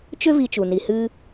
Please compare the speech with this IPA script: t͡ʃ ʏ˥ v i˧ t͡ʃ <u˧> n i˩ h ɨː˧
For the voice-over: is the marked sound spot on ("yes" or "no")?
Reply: no